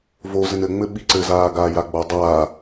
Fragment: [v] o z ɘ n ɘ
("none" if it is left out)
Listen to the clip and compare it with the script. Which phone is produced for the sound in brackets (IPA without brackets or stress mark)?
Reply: v